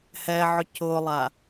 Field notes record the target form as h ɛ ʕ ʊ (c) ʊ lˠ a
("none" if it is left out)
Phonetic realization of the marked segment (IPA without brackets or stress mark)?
c